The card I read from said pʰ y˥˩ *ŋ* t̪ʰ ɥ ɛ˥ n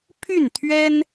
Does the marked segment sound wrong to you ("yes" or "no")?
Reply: yes